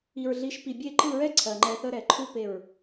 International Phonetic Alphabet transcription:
i˨ɹɮi˨˦ʃ pi˨bʲe˦˨ǃɯ˦˨ɹɛ˦ ǀʰɜ˨ŋ͡ǃɛ˧θə˦ ɾɛ˨ǃʰu˦ pe˦˨ɹ

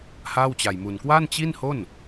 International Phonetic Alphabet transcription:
haː˥˩wt͡ɕa˧jmu˧n kwa˥˩nt͡ɕi˥˩nho˥˩n

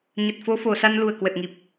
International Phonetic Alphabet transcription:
ɲə˨˩t̚fo˨˦fo˨˩sa˧n lu˨˩ə̯kwə˨˩t̚ŋi˨˩p̚

